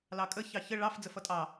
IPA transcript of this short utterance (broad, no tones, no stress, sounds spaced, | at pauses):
l ɑ kʼ ə ç ɑ ç ə ɭ ɑ f d͡z ə f ʌ tʼ ɑ